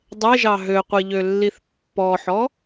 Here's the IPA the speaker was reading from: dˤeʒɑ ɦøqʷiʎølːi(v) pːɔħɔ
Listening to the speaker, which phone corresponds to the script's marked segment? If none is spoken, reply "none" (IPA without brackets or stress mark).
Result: θ